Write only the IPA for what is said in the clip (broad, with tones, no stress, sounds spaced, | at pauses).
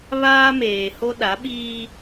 β aː˦ m eː˨ h o˦ ɗ a˨˦ ɓ iː˦